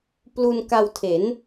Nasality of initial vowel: oral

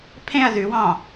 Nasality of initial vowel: nasal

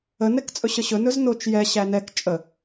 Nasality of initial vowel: oral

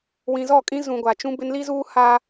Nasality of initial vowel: nasal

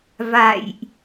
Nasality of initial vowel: oral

